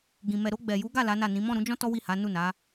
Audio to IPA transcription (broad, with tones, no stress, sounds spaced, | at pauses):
ɡ ĩ˨ m ɛ˨ ɾ o˧ ɡ͡b ɛ˨ j u˨˦ ɡ a˦˨ l a˨˦ n a˦˨ n ĩ˨˦ m ɔ̃˦˨ ɾ ũ˨˦ d͡ʒ ɔ̃˦ t ɔ˦ w i˦˨ h a˨˦ n u˦˨ n a˨˦